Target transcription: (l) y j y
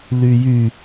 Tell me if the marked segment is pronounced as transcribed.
yes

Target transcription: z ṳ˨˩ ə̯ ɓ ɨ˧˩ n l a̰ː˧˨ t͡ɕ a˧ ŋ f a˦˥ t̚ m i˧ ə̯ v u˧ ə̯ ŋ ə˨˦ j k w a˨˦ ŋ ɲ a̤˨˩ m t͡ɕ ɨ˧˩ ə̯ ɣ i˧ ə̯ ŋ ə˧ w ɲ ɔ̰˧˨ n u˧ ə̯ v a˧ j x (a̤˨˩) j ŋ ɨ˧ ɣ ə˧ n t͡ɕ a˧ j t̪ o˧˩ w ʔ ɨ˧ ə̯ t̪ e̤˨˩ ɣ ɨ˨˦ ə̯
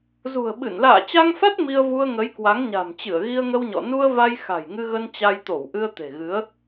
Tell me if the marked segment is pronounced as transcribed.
yes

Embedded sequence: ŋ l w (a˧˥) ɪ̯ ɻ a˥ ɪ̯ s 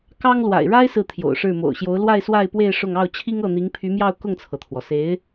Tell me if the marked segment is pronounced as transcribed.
no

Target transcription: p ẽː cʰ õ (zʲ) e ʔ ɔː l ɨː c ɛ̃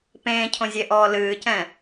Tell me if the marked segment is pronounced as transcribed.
yes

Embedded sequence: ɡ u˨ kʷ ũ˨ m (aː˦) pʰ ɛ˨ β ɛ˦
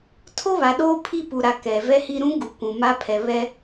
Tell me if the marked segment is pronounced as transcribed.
no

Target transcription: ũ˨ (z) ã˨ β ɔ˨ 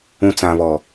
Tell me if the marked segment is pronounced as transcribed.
no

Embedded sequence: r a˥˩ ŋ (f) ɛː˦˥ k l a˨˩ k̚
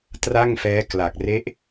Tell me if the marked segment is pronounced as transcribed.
yes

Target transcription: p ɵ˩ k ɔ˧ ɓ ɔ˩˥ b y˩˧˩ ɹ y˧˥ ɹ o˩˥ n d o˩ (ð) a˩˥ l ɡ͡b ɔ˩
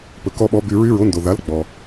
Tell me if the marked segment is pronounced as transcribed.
yes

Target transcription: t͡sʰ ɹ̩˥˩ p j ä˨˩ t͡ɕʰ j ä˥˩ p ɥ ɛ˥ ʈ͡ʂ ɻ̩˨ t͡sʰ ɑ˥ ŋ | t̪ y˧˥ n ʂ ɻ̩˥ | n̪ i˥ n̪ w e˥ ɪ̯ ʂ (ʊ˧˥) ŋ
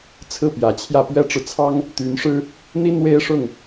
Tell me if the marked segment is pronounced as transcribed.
no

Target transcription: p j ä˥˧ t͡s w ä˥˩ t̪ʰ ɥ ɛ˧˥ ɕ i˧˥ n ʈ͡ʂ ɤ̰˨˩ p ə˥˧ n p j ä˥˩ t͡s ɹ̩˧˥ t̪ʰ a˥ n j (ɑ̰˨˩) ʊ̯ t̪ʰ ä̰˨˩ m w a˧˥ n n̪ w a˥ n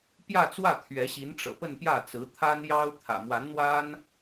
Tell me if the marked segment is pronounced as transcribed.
no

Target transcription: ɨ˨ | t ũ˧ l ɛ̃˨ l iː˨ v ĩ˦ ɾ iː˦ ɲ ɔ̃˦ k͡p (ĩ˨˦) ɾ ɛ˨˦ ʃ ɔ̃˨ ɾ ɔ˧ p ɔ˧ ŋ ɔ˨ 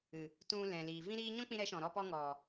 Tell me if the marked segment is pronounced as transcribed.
no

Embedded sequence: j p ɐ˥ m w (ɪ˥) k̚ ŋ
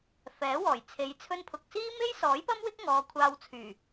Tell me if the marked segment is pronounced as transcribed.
yes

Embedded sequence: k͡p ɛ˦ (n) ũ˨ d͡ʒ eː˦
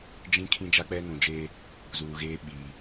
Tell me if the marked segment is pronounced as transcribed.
yes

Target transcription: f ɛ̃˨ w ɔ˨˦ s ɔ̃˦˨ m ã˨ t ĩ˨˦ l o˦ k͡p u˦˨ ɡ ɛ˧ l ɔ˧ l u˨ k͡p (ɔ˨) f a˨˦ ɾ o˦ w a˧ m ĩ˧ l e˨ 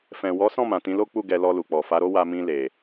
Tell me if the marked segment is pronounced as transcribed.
yes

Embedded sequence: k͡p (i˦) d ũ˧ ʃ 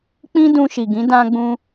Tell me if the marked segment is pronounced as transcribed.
no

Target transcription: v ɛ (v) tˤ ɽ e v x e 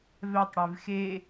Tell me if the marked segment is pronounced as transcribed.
no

